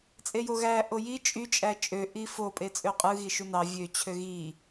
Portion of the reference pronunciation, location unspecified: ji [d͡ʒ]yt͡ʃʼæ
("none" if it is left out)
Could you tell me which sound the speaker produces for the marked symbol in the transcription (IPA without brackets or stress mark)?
t͡ʃʼ